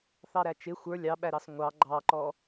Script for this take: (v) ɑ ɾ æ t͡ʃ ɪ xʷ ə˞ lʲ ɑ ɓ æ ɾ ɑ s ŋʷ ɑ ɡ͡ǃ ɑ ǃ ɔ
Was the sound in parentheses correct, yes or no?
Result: no